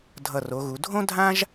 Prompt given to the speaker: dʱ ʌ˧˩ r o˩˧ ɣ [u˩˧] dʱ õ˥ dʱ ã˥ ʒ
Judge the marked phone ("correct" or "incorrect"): correct